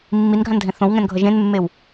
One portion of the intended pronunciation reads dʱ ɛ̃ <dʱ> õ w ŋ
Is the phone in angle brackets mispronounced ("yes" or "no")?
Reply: yes